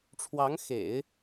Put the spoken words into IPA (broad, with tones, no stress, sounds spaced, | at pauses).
ʈ͡ʂʰ w ɑ˧˥ ŋ x ḛ˨˩˦ ɪ̯